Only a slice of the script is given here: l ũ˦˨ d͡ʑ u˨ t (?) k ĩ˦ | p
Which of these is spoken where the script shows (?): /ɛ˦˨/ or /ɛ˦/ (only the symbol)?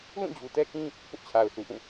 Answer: ɛ˦